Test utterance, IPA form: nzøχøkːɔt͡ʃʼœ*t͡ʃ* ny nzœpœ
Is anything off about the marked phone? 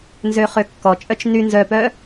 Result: no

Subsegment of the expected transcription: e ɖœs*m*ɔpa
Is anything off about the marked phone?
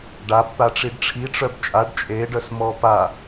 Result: no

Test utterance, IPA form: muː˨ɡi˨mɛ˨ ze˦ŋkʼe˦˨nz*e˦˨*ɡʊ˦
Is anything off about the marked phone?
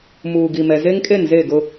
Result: no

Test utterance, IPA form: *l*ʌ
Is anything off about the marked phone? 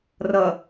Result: yes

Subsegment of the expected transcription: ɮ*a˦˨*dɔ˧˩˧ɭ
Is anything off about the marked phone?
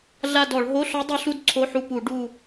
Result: no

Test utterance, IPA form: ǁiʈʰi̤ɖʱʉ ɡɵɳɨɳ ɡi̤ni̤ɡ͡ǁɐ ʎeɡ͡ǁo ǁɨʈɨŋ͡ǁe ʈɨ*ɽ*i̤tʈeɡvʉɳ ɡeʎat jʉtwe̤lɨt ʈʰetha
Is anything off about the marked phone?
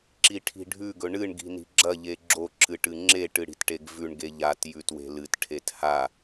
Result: no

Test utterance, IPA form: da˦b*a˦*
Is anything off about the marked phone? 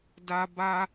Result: no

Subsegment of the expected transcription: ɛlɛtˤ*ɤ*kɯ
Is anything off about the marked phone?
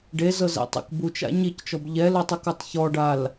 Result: yes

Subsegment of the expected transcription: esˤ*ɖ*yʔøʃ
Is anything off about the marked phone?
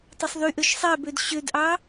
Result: yes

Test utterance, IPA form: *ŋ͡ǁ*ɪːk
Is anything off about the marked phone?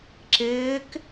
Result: yes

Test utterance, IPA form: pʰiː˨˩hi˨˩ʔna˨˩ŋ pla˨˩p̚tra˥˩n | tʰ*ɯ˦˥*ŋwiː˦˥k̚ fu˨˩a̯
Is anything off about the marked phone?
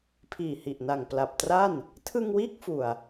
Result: yes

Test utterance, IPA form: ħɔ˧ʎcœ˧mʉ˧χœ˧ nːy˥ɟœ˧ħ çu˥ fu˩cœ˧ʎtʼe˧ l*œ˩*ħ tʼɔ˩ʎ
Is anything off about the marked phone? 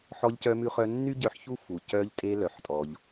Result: no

